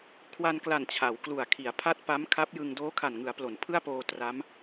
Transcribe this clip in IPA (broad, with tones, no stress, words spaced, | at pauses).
kʰwa˧nkla˨˩n t͡ɕʰa˩˦w klu˨˩a̯kʰi˩˦a̯ pʰa˦˥t̚ pa˦˥mkʰa˦˥p̚jɯ˧ŋ doː˦˥kʰa˨˩nŋɯ˩˦a̯plo˩˦n pʰɯ˥˩a̯poː˧ tra˦˥m